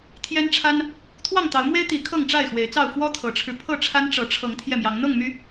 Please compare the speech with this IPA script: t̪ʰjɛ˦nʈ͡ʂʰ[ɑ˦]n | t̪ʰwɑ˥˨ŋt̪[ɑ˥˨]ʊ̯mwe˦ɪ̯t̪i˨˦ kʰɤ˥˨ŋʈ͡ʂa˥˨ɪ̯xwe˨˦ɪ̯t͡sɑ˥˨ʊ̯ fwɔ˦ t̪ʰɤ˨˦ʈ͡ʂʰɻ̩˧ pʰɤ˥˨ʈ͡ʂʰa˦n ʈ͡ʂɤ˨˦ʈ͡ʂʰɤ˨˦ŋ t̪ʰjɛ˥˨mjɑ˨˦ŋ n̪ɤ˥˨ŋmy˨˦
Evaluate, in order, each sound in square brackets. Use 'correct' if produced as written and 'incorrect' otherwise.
incorrect: a˦, incorrect: ɑ˨˦

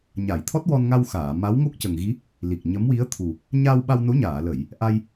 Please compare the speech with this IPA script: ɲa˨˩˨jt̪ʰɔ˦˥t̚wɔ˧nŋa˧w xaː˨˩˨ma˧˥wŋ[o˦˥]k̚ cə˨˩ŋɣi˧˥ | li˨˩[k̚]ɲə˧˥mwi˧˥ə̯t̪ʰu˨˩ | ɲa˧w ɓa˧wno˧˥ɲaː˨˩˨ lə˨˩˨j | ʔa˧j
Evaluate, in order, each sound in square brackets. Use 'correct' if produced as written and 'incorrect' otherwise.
correct, correct

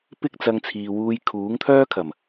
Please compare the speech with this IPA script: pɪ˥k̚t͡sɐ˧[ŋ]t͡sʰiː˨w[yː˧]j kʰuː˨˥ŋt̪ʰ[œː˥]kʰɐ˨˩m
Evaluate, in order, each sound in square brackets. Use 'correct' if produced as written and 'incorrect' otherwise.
correct, incorrect: uː˧, correct

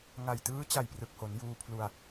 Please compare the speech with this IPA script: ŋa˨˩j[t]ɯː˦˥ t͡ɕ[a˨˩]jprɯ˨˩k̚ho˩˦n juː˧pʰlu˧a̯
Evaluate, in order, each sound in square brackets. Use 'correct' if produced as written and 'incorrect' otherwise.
correct, correct

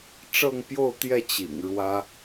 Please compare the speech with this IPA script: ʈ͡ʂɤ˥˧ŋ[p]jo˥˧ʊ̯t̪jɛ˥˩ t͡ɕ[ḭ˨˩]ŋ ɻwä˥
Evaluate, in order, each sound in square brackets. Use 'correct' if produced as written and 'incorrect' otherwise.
correct, correct

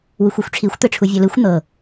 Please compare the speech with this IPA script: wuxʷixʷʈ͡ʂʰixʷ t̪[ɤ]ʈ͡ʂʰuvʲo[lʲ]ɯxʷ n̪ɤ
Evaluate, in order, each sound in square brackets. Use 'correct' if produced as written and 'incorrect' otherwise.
incorrect: ɯ, incorrect: l

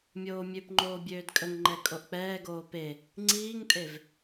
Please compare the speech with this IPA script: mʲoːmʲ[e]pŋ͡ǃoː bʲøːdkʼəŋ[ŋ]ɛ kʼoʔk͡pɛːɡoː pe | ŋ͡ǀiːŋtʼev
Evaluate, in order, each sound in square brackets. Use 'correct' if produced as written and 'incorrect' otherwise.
incorrect: ø, incorrect: ŋ͡ǃ

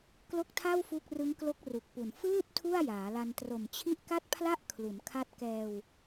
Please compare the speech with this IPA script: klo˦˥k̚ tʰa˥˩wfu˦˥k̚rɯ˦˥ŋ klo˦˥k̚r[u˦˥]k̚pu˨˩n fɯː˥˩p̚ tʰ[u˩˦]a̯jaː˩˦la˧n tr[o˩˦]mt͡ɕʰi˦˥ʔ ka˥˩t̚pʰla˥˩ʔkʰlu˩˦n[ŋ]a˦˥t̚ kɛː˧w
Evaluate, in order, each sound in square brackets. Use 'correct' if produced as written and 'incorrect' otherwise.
incorrect: u˨˩, incorrect: u˥˩, incorrect: o˨˩, incorrect: kʰ

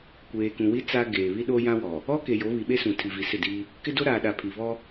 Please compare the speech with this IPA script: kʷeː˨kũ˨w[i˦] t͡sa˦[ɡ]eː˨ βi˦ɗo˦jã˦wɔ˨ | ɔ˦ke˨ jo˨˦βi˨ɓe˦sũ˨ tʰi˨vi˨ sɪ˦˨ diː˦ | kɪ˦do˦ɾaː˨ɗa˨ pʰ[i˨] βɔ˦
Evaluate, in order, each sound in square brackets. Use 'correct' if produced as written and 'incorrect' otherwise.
correct, correct, correct

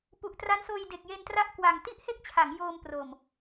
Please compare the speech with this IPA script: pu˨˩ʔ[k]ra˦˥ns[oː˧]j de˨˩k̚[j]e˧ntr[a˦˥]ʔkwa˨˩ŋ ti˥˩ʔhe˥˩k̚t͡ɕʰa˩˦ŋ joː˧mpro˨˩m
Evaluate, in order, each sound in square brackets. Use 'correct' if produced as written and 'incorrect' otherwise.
incorrect: t, correct, correct, correct

